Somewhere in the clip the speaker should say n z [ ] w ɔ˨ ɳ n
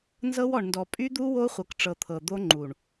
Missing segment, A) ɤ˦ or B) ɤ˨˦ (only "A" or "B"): A